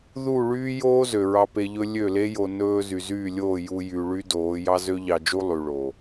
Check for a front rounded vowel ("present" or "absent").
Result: present